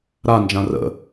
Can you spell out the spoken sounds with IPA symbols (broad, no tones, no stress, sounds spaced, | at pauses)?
ɾ a n d͡ʒ ã r ə̰